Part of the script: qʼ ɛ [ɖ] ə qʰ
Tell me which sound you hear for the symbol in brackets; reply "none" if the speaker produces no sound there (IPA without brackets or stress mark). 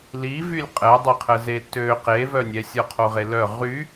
dˤ